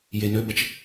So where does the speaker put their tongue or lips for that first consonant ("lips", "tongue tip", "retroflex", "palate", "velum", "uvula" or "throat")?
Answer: palate